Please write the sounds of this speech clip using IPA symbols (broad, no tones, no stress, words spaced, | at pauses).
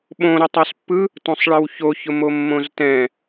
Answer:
ɓõɾʊ tˤospːɯ | tõsˤɭəwço çʊmomːõztɛ̃